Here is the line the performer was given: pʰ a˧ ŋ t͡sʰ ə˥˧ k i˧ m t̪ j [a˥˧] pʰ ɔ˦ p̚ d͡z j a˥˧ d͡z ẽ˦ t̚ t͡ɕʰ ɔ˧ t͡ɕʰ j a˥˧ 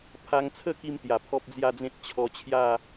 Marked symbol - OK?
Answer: no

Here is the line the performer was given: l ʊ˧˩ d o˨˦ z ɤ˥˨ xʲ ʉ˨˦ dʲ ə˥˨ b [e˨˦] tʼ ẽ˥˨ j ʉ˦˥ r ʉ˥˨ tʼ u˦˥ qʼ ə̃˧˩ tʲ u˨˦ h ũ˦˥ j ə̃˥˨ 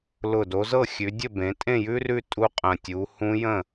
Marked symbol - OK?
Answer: no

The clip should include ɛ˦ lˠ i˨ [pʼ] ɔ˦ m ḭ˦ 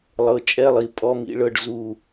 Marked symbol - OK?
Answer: yes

